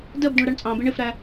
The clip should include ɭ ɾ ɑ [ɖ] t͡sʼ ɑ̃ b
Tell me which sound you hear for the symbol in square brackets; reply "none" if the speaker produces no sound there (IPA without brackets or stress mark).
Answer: ɳ